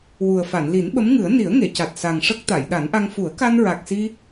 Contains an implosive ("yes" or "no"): yes